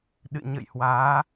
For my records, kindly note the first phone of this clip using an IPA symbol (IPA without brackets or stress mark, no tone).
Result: ɗ